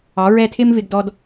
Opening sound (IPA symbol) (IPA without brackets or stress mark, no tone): ɑ